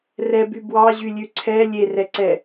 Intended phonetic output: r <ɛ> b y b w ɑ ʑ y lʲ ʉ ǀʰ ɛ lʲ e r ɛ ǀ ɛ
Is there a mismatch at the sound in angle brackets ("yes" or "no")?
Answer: no